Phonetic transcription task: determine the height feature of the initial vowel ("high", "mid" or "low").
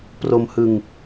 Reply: mid